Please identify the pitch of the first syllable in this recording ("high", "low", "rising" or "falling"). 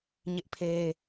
high